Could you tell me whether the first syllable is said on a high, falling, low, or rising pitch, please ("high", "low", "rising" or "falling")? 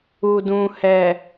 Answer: low